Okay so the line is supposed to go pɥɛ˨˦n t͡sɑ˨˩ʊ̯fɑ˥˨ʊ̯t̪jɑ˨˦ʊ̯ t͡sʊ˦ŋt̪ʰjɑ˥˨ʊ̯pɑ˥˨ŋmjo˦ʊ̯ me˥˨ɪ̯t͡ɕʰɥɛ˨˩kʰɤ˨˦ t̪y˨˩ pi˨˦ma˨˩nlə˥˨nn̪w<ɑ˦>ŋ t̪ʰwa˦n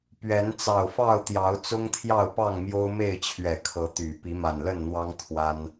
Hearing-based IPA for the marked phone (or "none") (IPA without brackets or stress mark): ɑ˦